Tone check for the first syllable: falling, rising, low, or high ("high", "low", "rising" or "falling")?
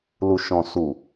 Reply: low